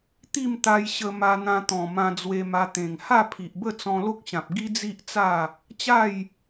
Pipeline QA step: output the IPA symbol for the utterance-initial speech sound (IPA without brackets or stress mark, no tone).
t̪